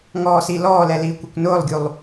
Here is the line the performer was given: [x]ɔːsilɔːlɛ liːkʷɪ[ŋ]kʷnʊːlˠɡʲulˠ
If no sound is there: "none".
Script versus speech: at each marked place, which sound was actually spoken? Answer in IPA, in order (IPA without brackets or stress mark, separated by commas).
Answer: ŋ, none